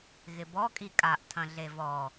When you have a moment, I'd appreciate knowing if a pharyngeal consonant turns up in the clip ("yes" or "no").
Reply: no